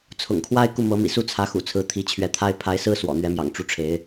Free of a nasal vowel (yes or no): yes